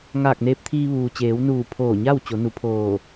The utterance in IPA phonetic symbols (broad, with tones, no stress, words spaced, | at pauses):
ŋaː˧˩k̚neː˧p̚t̪ʰiː˧ ʋuː˩t͡ɕeː˩˧w nuː˧˩ pʰoː˧˩ɲa˥˨w t͡ɕo˩˧nu˩˧pʰoː˧˩